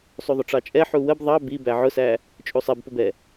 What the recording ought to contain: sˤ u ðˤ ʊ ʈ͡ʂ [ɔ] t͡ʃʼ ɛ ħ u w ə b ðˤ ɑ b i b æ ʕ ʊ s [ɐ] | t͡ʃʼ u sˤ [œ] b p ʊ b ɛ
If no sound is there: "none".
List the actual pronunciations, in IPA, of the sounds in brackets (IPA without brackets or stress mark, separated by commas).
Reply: ɑ, æ, ɛ